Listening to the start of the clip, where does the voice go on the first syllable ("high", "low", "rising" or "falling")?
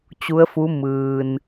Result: rising